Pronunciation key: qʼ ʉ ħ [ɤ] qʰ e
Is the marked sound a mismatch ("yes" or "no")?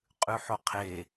yes